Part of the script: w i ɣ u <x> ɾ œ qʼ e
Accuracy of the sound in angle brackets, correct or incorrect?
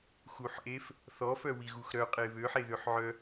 correct